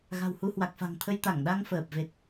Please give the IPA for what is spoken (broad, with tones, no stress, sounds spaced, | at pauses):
ɣ a̤˨˩ w h u˧ h w a˨˩ k̚ f a̤˨˩ ŋ t̪ʰ ə˧ j t̪ a˧˩ ŋ ɗ a˧ ŋ f əː˨˩ p̚ v e˨˩ t̚